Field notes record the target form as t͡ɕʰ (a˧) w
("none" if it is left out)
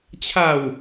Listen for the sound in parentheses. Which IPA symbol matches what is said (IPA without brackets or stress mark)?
a˨˩